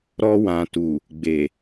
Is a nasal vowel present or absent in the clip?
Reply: present